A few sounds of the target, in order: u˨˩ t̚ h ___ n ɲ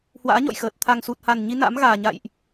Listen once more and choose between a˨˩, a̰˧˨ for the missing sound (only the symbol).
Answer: a˨˩